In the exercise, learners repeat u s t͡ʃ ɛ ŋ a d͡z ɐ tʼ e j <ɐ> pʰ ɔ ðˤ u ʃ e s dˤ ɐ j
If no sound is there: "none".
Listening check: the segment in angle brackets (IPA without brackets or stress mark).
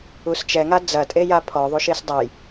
a